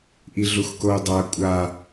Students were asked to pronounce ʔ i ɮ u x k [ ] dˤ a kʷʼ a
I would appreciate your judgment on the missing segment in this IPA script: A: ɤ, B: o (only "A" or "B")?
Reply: B